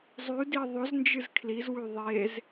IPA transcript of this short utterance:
zˤ ʉ d i ðˤ ɵ z n d͡ʒ ɨ z kʰ l i z w ʉ ðˤ e z

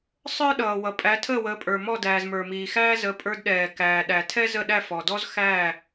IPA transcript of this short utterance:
sˤ ə˞˥ ɗ ʌː˩ w ʌ˩ pʼ æ˩˥ tʰ əː˥˩ w əː˩˥ pʼ ə˞˩ m ɔ˥˩ d æː˩ z m ə˞˩ m iː˩ x æː˥ z ə˩˥ pʼ ə˞˧ d ɗ ɛː˩ k æː˩ ɗ æ˩ tʰ ɛ˥ z ə˥˩ ɗ æ˥˩ f ɔ˩ d ɔ˥ z x æ˥˩

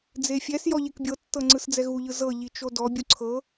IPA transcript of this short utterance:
d͡z e fʲ ɛ s j ɔ ʎ e k bʲ ɤ tː ɤ ŋ͡ǀ ɯ s d͡z ɛ ɣ u ʎ ɯ z ɤ ʎ i t͡ʃ o d ɔ bʲ u ǀʰ ɤ

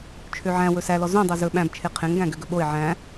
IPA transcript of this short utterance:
t͡ʃʰ ø ʕ æ̃ w ɵ s æ l ɔ z õ dˤ o z ɵ ɓ æ̃ b t͡ʃʰ e qʰ ẽ ŋ ɡ æ̃ ɡ ø ɡ ɵ ɓ o ɪ̯ ʕ æ̃

